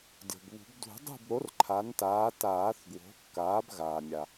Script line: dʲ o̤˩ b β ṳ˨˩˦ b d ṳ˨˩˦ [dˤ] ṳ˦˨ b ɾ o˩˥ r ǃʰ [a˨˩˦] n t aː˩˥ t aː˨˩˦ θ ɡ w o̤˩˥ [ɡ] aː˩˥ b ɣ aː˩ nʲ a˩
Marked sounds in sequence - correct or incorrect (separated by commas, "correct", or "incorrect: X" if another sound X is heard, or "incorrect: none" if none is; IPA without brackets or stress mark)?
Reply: correct, incorrect: a˩˥, incorrect: kː